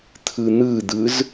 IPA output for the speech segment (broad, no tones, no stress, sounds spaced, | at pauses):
t̪ʰ ɯ n̪ ɯ d̪ ɯ z